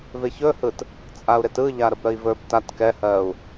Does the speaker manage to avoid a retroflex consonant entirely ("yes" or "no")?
yes